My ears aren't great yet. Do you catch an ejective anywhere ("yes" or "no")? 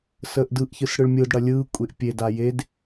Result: yes